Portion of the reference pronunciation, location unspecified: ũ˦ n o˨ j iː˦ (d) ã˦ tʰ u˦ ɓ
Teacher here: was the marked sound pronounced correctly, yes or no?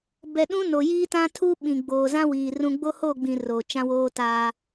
no